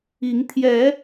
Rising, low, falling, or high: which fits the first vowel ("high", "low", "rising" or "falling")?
rising